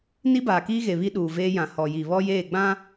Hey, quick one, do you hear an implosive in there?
yes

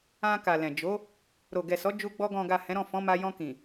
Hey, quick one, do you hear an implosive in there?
no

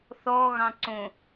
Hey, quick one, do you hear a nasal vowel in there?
yes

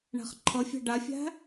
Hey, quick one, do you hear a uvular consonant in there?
yes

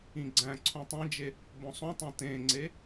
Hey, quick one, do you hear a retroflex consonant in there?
no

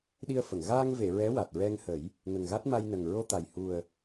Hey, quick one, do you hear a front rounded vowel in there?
no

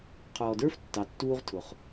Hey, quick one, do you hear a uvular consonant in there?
yes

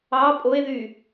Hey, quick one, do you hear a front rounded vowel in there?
yes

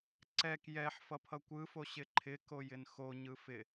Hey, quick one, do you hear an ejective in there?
no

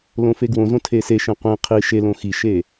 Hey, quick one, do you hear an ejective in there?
no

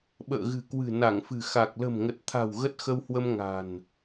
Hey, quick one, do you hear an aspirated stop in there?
yes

